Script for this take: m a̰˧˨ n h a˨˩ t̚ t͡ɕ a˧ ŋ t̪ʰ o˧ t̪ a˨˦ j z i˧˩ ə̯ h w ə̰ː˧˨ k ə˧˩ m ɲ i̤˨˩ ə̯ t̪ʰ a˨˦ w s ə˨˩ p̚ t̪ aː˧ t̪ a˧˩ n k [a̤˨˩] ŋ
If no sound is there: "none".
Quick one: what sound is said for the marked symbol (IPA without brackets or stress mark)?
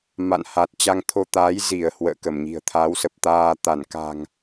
a̤˨˩